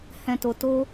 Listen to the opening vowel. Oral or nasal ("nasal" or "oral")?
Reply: nasal